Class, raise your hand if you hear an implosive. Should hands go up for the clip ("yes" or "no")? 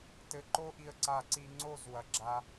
no